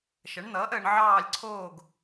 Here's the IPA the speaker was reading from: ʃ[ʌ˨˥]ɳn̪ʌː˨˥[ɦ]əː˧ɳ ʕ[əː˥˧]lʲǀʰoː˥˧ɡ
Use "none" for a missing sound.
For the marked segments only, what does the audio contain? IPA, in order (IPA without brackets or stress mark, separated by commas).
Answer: ʌ˨˥, ʔ, ɑː˥˧